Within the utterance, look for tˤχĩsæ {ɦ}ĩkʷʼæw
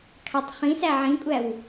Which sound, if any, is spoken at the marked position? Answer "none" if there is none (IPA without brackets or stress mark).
ʕ